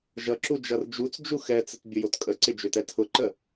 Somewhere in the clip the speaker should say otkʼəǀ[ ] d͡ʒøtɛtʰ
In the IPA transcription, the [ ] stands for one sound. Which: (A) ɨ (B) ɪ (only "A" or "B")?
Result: B